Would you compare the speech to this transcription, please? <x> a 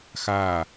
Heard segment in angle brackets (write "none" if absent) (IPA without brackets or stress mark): x